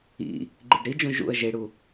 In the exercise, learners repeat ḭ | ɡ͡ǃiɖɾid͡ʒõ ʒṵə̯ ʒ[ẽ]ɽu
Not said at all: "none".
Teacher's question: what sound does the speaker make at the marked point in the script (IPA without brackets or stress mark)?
e